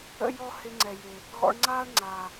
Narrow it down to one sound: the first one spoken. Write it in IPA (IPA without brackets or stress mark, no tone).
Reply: ə̰